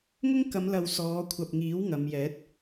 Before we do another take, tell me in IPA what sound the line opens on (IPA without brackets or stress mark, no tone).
ŋ